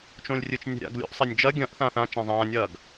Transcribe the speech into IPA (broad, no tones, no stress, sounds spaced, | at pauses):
t͡ʃ õ lʲ rʲ ɨ t͡ʃ nʲ ɛ̤ ɾʲ a̰ ɡ lʲ o̰ ʔ sˤ a nʲ d͡ʒ ɐ ɡʲ ɐ̃ ʔ θ ãː θ ã t͡ʃ ã zˤ ãː nʲ ɐː ɡ